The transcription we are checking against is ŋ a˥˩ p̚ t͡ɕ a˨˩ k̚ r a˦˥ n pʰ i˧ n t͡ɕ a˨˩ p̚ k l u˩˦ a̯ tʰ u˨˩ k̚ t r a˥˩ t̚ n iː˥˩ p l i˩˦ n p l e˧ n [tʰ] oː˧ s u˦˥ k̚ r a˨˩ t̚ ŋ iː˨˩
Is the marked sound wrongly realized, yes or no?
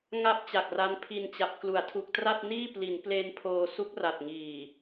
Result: yes